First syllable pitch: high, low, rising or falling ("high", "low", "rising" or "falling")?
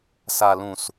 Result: low